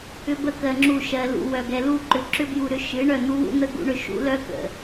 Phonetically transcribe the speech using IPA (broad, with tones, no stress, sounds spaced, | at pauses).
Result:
ʏ˦ b ə˦ k ɜ˧ ŋ͡ǁ u˦˨ ʃ ɜ˧ l ṵ˧ w œ˨ ɡ ɛ˨ l u˦˨ ǃ ʏ˧ ǁ ʏ˦ b j u˧ ɾ ʏ˧ ʃ ɨ˨˦ ɳ œ˦˨ n̪ u˦ w ṵ˦ n̪ ə˦ ɡ ṵ˦ ɳ ʏ˧ ʃ ṵ˦ l œ˦ k ə̰˨